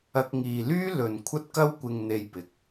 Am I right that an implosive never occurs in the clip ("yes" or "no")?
yes